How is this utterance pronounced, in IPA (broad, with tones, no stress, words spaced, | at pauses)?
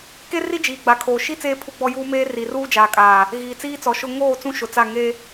ke˦ri˦ d͡ʒiː˨ɡ͡ba˨kʰoː˨ ʃi˦ t͡seː˦pʰu˦ɡ͡bɔ˦ juː˦meː˦ ri˨ruː˦d͡ʒaː˨kʼaː˨ | ɣiː˨t͡siː˦t͡sɔ˨ʃʊ˦ ŋoː˦˨ t͡sũ˦ʃʊ˨t͡sa˦˨ ŋe˦